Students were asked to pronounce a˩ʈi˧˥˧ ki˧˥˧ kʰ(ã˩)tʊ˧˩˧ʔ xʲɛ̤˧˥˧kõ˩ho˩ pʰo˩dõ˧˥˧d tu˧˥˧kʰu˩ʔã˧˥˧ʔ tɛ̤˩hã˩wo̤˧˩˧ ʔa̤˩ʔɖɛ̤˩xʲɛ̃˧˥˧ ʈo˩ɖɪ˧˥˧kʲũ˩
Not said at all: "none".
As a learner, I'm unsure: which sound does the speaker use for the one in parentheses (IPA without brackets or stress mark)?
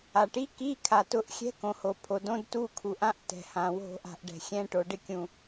a˩